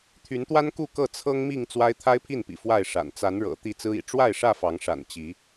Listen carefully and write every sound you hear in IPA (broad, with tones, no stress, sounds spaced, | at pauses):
t̪ʰ y˨˦ n t̪ w a˦ n k u˥˨ k ɤ˥˨ t͡sʰ ɤ˦ ŋ m i˥˨ ŋ t͡s w a˦ ɪ̯ t̪ʰ a˦ ɪ̯ pʰ i˥˨ n p ḭ˨˩ f w a˥˨ ɪ̯ ʂ a̰˨˩ n t͡s a˨˦ n ɻ ɤ̰˨˩ t̪ i˥˨ t͡s ɹ̩˦ ḭ˨˩ ʈ͡ʂ w a˥˨ ɪ̯ ʂ ä˥˨ f ɑ˨˦ ŋ ʂ a̰˨˩ n t͡ɕ i˨˦